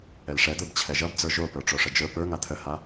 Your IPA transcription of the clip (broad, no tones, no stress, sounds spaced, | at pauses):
ɛ l ʂ ɛ d̪ ə˞ b t͡ɕʰ ɛ ʒ ʌ b d͡z ə˞ ʒ o p ə˞ ʈ͡ʂ o ʂ ə d͡ʒ ə˞ p ə˞ ŋ a t̪ʰ ə h a